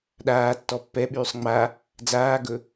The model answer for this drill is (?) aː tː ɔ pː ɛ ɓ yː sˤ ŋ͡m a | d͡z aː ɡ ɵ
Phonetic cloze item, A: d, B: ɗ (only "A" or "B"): B